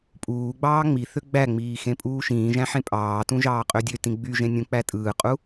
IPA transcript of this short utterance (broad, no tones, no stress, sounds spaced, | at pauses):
pʼ uː ɡ͡b ɑː ŋ͡m i θ ø ɡ͡b æ ŋ͡m iː x ẽ pʼ uː ʃ ĩː ʒ æ̃ ħ ẽ pʼ ɑː t ũ ʒ ɑː qʼ ø dʲ ø t ĩ ɡ͡b y ʒ ẽ nʲ ũ k͡p æ tʼ ɯː qʼ u